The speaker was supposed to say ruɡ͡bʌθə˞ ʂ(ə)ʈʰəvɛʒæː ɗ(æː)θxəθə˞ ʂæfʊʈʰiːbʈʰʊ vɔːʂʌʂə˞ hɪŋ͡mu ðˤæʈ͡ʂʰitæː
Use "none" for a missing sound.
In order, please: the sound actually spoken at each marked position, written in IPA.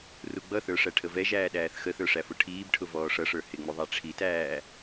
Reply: æ, æː

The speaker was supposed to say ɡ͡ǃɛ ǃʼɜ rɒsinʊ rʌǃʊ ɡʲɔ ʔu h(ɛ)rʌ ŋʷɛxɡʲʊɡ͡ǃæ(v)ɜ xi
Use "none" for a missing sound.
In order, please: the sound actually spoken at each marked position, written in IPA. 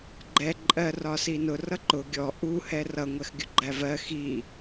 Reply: ɛ, v

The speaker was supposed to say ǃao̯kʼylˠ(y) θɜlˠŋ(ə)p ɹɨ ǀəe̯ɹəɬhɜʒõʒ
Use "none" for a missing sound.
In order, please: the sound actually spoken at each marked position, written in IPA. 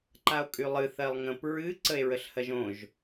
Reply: ɨ, ə̃

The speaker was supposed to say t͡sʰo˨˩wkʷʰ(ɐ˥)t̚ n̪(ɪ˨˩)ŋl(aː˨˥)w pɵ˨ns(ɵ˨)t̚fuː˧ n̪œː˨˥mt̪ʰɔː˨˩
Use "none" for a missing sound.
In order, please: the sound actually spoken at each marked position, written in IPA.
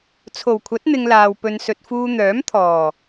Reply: ɐ˨˥, ɪ˧, aː˨, ɵ˨

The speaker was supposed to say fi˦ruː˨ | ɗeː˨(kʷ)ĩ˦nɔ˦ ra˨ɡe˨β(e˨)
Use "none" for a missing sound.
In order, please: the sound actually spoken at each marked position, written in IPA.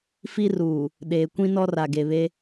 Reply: kʷ, e˦

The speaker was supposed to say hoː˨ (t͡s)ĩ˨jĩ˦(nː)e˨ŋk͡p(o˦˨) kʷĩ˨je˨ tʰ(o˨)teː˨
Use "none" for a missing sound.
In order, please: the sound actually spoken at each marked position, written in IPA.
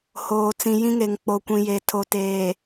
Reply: t͡s, ŋ, o˨, o˨

